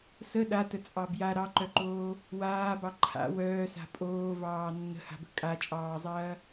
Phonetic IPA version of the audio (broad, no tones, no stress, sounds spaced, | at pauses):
s ə ɗ a t ə t͡sʼ ɑ b j a ɾ ɑ ǃ œ ǃ oː | w aː b ɑ ǃʰ a̰ w œː s a̤ pʼ oː v ɑː nː ə̤ h a̤ b ə̤ kʼ a t͡ʃʼ ɑː zˤ ɐː